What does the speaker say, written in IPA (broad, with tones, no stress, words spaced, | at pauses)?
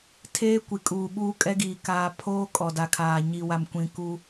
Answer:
tʰeː˦kʷi˨kʼuː˨ɓuː˦ kʼɛ˦ɡiː˨ kaː˨pʰoː˦ kʼɔ˨da˨kʰaː˨ ɲi˨wa˨mkʷĩ˨ku˦